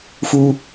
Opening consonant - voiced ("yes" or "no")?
no